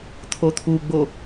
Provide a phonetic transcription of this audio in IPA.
t̪ʰ o t̪ʰ u ɡ͡b o

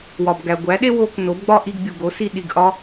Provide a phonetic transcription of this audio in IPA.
w ɒ˩ b ɡ æ˩ ɡʷ æ˩˥ ɗ e˥ w o˧ k n o˩˥ b ɡ͡b ɒ˥ ʔ i˧ ɡ bʲ u˩ ɡ o˩˥ s i˧ ɗ i˩ ɡ ʔ ɒ˥

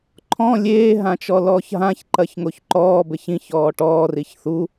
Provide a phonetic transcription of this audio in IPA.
ǃʰ ɔ̃ lʲ eː ɦ ã t͡ʃ ɔ l ɔː ç ɦ ã ç ǃ ɐ ç ŋ o ç ǃ ɔː b ɘ ç ĩ ç ɔː ʈ ɔː r i ç θ u

